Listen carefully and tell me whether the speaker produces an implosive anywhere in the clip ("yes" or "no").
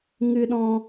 yes